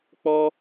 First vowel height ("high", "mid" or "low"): mid